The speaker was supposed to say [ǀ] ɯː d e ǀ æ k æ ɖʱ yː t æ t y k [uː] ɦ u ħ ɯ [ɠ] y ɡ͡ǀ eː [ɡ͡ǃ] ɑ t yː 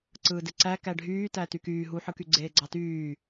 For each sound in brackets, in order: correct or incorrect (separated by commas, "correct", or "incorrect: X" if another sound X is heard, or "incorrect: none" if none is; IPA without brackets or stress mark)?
correct, incorrect: yː, incorrect: k, incorrect: ɡ͡ǀ